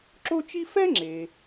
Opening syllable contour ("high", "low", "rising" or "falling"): high